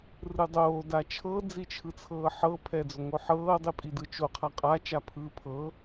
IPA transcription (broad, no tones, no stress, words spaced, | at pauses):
rɯdˤoː dat͡ʃʰɤ d͡zit͡ʃʰɯt͡sʰɤːħɤ pʰɛd͡zoŋoħɤː dˤipʼidɯt͡ʃo qʰaqʼa t͡ʃapʰɯːpʰɤ